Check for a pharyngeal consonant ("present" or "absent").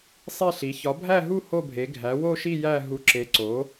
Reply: absent